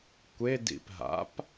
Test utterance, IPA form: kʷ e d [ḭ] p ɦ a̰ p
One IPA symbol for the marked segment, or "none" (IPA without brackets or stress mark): ḭ